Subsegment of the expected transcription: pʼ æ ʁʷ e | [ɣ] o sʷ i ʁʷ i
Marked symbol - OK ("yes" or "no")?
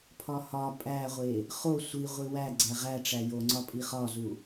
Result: no